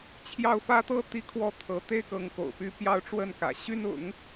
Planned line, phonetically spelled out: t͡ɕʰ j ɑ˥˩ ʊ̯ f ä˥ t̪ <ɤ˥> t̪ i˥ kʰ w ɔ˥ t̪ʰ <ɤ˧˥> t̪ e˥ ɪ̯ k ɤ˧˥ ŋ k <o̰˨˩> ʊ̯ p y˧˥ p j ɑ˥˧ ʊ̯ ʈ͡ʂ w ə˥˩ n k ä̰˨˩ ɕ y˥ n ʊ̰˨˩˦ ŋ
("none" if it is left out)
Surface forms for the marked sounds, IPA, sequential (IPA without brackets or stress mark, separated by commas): ɤ˥, ɤ˧˥, o̰˨˩